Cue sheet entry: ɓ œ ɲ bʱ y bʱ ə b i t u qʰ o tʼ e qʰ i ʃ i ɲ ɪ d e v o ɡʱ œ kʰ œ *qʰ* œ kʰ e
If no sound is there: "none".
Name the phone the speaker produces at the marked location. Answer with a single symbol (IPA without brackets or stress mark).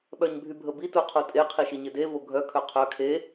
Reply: qʰ